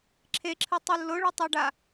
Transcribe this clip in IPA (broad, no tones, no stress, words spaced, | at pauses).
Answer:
ǁʰeǁʰɨtˤɨ lːoɭɛtˤɛɖa